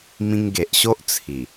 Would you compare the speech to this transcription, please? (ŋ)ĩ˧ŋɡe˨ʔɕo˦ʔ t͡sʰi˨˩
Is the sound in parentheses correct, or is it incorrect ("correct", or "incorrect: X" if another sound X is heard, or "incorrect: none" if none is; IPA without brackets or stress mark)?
incorrect: m